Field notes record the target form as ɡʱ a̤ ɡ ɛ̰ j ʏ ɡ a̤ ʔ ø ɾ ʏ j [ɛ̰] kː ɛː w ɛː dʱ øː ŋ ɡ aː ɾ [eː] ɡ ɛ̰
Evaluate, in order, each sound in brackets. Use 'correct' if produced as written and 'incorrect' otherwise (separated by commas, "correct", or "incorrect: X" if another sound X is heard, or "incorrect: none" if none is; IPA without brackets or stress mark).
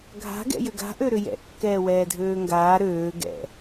correct, incorrect: øː